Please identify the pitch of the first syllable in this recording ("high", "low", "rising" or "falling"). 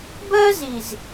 high